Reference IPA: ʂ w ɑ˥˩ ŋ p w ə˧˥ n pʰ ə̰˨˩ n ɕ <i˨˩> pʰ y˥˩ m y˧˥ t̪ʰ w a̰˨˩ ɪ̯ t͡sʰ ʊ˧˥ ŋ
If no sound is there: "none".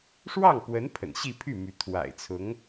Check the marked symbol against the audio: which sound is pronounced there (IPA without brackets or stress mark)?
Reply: i˥˧